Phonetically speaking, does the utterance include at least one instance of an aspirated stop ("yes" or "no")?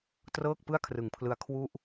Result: yes